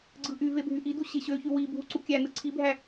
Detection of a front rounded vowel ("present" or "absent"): present